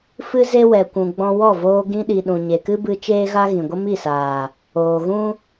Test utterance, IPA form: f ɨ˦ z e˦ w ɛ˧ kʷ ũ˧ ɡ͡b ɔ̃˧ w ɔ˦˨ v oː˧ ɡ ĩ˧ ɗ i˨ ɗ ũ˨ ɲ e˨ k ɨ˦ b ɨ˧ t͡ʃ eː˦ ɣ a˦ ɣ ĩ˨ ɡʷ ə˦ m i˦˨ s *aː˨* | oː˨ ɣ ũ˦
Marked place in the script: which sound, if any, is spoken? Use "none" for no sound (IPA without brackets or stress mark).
aː˨